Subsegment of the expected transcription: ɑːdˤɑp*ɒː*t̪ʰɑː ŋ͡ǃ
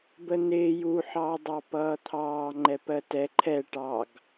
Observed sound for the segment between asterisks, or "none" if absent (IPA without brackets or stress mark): ʌː